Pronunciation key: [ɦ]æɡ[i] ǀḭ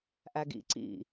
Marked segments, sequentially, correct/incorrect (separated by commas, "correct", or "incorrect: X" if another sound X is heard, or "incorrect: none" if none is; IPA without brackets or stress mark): incorrect: ʔ, incorrect: ḭ